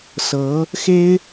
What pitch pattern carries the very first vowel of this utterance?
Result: rising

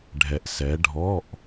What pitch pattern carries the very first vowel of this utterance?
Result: low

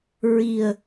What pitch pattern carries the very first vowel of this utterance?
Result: low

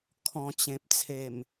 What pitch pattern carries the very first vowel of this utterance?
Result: low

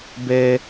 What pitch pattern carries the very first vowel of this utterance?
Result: high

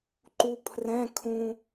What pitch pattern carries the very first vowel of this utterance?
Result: low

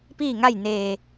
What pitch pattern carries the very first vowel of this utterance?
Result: falling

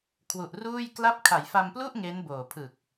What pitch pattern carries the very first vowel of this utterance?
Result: low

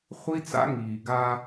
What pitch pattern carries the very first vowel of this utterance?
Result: high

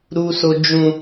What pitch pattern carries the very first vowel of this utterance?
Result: low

